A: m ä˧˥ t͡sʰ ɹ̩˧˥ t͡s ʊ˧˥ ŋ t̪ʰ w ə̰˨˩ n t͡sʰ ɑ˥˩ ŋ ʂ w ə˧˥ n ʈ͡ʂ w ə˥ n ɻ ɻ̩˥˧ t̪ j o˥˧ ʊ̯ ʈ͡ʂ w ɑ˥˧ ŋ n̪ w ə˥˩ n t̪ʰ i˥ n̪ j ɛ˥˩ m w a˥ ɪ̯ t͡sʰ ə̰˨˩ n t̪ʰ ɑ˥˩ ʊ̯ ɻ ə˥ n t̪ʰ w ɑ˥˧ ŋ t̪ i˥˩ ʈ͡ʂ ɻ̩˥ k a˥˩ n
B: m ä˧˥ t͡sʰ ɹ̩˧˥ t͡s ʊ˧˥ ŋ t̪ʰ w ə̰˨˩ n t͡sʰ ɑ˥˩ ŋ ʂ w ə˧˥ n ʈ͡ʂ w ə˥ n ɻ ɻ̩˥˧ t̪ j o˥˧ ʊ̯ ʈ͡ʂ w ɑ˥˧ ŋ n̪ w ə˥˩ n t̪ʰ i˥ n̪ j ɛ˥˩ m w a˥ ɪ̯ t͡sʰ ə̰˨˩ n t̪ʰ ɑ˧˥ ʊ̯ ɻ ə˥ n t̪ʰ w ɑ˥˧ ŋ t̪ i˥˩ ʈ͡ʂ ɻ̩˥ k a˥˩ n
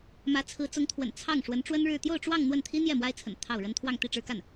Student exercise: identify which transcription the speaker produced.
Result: A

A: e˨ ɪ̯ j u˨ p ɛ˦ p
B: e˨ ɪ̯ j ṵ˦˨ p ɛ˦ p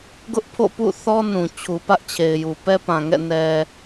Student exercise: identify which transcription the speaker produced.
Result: A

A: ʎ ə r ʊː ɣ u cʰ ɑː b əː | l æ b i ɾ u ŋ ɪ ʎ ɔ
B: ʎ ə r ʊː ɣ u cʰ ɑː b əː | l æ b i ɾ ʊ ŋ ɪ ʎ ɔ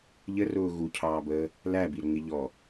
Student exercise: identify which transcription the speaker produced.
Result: B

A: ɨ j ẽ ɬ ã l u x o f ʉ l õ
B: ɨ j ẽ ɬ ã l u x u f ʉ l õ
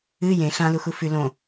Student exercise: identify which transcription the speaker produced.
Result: B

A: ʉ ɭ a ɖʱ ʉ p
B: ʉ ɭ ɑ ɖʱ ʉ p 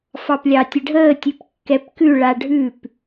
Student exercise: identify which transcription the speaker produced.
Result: A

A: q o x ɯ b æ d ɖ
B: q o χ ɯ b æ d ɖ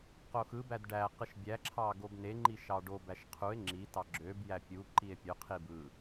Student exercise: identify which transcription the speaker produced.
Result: A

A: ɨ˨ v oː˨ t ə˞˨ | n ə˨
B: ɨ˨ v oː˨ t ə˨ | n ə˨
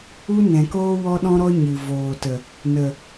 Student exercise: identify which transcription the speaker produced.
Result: B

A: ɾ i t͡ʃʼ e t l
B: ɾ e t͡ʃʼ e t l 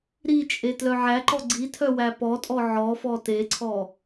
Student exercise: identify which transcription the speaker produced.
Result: A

